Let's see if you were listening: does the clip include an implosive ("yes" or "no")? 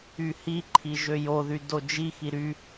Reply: no